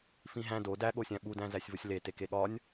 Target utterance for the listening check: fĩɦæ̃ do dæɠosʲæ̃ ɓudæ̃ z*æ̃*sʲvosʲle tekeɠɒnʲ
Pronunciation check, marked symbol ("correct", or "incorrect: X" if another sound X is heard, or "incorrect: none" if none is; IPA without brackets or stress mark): incorrect: æ